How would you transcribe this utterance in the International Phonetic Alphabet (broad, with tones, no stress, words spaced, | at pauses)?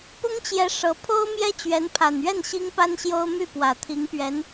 pʊ˥ŋt͡ɕjɛ˧˥ ʂɤ˧˥ pʰo˥ʊ̯ mjɛ˥t͡ɕɥɛ˧˥npʰa˨˩nɥɛ˥˩n ɕi˥ŋpa˥nɕjo˥ʊ̯ my˥˩pwä˨˩t̪ʰi˧˥ŋpɥɛ˧˥n